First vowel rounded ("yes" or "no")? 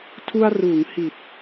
yes